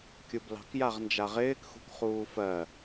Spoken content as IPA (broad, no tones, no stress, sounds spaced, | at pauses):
kʲ u b l ɑ̤ k j a ʁ n d͡ʒ a ʁ ɪː k x ṳ k χ uː f ɜ